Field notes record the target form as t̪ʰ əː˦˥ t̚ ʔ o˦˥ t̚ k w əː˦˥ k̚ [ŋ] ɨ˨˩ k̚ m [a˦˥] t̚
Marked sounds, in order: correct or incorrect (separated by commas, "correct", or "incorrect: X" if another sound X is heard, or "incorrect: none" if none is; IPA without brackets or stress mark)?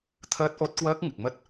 correct, incorrect: ə˦˥